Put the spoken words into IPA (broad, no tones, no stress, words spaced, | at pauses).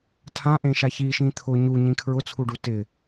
tʰãʔẽʃa çiʃĩ t̪ʰʊ ɲuɲĩ kʰɹʊt͡sʰuɖu tɪ